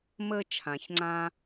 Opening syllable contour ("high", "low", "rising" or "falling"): high